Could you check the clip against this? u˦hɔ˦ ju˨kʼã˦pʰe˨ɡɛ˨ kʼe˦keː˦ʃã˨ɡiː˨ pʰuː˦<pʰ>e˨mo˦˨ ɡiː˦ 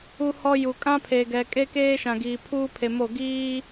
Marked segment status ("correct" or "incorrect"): correct